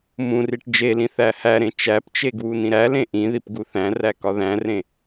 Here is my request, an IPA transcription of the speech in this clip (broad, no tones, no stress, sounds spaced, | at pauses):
m ũ r i ʈ d͡ʒ e l ĩ θ æ h æ ɾ ẽ t͡ʃ æ p t͡ʃ e ɡ w u n ĩ ɾ æ l ẽ ʔ ĩ ð i p ɡ u θ æ̃ r æ k ɒ ð æ̃ r ẽ